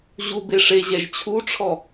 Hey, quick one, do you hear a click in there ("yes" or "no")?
no